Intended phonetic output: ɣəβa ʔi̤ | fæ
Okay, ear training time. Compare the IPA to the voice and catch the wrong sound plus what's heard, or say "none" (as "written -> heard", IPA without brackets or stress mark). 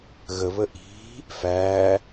a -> ə